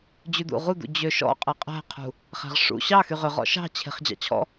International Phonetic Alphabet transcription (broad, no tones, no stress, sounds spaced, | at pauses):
d͡ʑ ʉ d̪ ṵ ʁ u d̪ ṵ d͡ʑ ø ʃ ɔ̰ qʼ e qʼ æ̤ qʰ ṳ | χ æ̤ ʁ ʂ ṵ ɕ ɑ x y ʁ ø ʁ ɔ̰ ʃ ɑ̤ t͡ɕʰ e̤ χ d͡ʑ ɑ̰ t͡ɕʰ ɔ̰